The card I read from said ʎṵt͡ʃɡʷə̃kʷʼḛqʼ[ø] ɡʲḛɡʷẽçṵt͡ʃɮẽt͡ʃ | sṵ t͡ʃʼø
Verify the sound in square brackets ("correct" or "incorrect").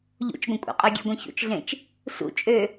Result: correct